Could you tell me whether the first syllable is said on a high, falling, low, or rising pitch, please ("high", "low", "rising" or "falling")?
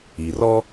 low